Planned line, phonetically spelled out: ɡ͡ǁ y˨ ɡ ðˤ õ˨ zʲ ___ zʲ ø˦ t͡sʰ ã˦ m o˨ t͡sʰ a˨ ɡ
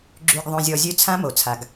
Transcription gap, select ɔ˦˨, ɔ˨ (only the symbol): ɔ˨